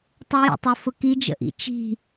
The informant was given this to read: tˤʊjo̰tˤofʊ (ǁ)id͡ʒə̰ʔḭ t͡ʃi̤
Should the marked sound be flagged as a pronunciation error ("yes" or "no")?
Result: yes